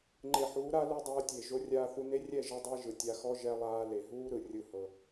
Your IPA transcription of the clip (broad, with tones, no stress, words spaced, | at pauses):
ŋ͡ǃe˨ħuː˨˦ɾa˦ lu˦dˤɤː˧tʲe˨ ʒo˧rʲaː˧θu˧ne˦ rʲɛ˦˨ʒɤ˧dˤe˧ ʒɯ˨tʲa˧xɔ˦ ʒɛ˧lˠaː˧ le˨ɦuː˦ɾɯ˨ rʲɯ˦hɤ˧